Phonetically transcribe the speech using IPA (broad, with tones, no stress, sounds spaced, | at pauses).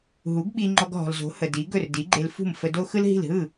ɦ u˩˥ ɡ ɓ i˧ ŋ͡ǃ ɔ˧ ɡ ɦ ɔ̤˩ l z o̤˩˥ h ə˩ d i˩˥ ɡ ɵ˥˩ r d i˩˥ ɡ͡ǃ e˧ l f ṳ˥˩ m f ə˧ d o˥ x ɯ˥ l ɦ i̤˥˩ l ɦ ɯ˥˩